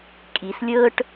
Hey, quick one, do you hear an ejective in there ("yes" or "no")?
yes